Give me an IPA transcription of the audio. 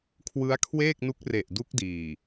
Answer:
kʰ w ɯ˦˥ a̯ kʰ w eː˥˩ k̚ n u˦˥ k̚ r e˨˩ ʔ d u˦˥ k̚ d iː˨˩

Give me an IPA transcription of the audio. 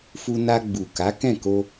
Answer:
f u˧ n a˧ ɡ͡b u˨ k a˨˦ k ɛ̃˦˨ k o˧

